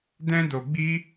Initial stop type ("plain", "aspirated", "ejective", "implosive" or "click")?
plain